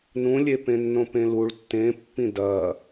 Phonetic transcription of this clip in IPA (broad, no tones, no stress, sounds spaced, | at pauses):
n ũ lʲ e p ẽ nː õ p ẽ l u ɭ tː ẽ pː ĩ d ɐ